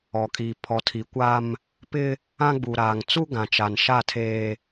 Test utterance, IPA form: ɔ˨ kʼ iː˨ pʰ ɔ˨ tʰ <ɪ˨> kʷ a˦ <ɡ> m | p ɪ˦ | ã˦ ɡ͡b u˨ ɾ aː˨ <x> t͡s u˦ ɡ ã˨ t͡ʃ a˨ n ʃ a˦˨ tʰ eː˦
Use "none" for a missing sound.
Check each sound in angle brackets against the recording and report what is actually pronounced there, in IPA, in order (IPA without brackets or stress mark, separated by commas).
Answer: i˨, none, ŋ